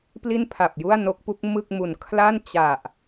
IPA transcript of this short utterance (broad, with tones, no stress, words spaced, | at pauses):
pli˥˩npʰa˨˩p̚ju˥˩a̯no˦˥k̚ pu˦˥k̚ mɯ˥˩k̚mu˨˩n kʰla˥˩nt͡ɕa˨˩ʔ